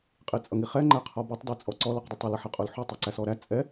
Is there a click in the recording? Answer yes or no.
yes